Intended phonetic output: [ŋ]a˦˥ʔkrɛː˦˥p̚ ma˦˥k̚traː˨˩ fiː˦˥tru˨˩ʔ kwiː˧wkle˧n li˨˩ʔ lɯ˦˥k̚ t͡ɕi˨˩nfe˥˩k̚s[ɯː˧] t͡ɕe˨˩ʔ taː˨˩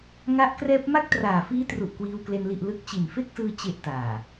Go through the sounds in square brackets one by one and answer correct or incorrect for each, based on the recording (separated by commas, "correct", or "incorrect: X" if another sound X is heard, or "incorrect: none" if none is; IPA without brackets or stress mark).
correct, correct